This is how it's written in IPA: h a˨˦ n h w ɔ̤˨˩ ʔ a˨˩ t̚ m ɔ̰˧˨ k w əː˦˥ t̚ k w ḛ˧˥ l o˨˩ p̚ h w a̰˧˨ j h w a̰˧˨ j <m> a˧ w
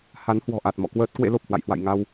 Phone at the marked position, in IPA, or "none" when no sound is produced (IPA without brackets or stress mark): ŋ